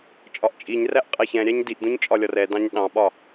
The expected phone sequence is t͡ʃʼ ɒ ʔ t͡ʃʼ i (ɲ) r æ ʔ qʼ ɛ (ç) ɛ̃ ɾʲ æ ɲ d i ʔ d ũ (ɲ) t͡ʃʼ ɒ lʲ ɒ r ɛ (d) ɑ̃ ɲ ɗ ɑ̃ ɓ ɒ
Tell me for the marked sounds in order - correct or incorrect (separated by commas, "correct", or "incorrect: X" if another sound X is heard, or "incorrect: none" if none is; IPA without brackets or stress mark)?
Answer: correct, correct, correct, correct